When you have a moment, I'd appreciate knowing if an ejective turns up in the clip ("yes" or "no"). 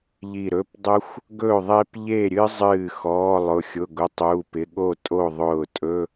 yes